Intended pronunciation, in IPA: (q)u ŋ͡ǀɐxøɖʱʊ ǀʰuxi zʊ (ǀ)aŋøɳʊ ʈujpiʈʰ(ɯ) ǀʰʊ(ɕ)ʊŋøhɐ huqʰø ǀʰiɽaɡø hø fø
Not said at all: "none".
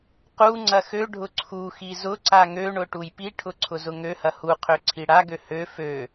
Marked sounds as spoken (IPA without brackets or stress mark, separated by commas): q, ǀ, ʊ, z